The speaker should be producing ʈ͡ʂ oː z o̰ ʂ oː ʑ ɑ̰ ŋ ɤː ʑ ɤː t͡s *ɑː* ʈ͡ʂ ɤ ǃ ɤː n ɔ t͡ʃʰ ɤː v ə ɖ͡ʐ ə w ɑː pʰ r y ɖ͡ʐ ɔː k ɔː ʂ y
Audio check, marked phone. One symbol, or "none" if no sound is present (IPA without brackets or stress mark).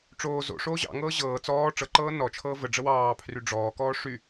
ɔː